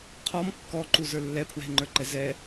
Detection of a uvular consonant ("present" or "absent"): present